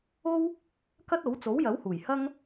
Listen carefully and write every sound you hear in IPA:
o˥w | kɐ˥t̚o˨˥w t͡so˨˥wjɐ˨˥whuː˨˩j hɐ˥ŋ

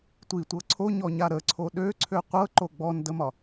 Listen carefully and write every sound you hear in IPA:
tʷitʷɤ ǀʰoɲɔɲa ɾəǀʰo ɗøǀʰø qʷɤǃo ɡ͡bɔndəmɒ

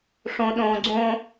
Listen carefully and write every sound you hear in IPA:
ʂõ ɗõ ɡ͡ǀõ

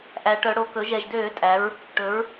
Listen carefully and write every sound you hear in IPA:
ʔæ˩˧ʈœ˩˧ ɽo˨˩kɵ˩˥ ʒɛ˨˩ʒdøː˧˩˧tʼæ˩˧ɹ | ʈɵ˩˥ɹ

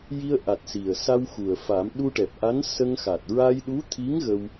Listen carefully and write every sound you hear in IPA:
ji˧ə̯ʔa˨˩t̚ si˨˩ə̯ sa˧w xu˨˩ə̯fa˨˩˦m ɗu˧ʈɛ˨˩p̚ ʔa˧˥n sə˧ŋxa˨˩t̚ ɹa˧jɗu˧˥t̪ʰi˧˥ŋ ɣə˧w

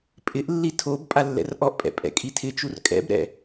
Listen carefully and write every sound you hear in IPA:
pʼɪʔlːi tʰob pʼalːɛ̰rʔɔʔpʼɛ̰ pʼɛ̰kʼitʰɪt͡ʃur kʼɛ̰bɾɛ̰

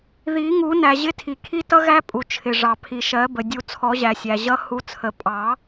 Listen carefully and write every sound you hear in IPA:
ði˨˩˦ŋu˨˩˦ næ˩ʑɪ˧˥tʰi˩kʰi˧˥ tʌ˧˥ɣæ˧˥ pʼu˩t͡ʃʰɪ˩ʐɑ˩ pʰi˩ʃɜ˨˩˦bə˩ dʲu˨˩˦t͡sʰɔ˨˩˦ʑæ˩ sʲæ˩ʑʌ˧˥ hu˧˥t͡sʰə˨˩˦ pʼɑ˨˩˦

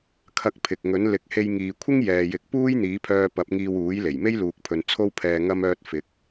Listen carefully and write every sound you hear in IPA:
kʰɐ˧k̚ pʰɪ˨k̚ŋɵ˨˥nlɪ˧k̚ he˧jŋiː˨kʷʰɪ˥ŋ jɛː˨jɪ˨˥k̚ puː˥jn̪iː˨˥pʰœː˧ pɐ˨˥p̚ŋiː˧wuː˨˥jle˨˩j me˥jluː˨k̚pʰɵ˨n t͡sʰo˧wpʰɛː˨ ŋɐ˧mœː˧t̚ fɪ˨˥k̚

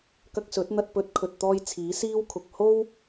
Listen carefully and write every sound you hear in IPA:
kɐ˧k̚sɵ˨˥t̚n̪ɐ˧t̚ pɵ˨˥t̚kʰɵ˨t̚t̪ɔː˧j t͡sʰiː˨˥siː˥wkʰʊ˨k̚ ho˥w

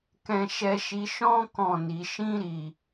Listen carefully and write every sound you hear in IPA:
kɛ̃˧ʃɛ˧ʃi˧ ʃɔ̃˦ kɔ̃˦˨ni˧ ʃĩ˦ɾi˧

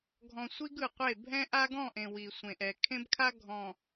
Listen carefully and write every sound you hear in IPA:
ɡʱɔ̃˨sʷi˦ɡɯ˨qʷe˦˨ bʱɛ̃˦ʔa˦ ɡɔ̃˦˨ʔẽ˨ wi˨sʷẽ˨ʔɛ˨ kʰẽ˦bkʰa˦ ɡʱɔ̃˨

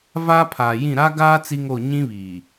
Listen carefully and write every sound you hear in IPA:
va˦ pʰaː˨jĩ˦˨ ɾa˦ɡaː˦ t͡si˦ŋo˦˨ ɲĩ˦βiː˨

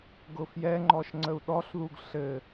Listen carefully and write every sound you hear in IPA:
ɡʊfjɛŋ͡ǃɔʃ ŋ͡ǀəu̯ɗɔɬðuɡ ɬɘ

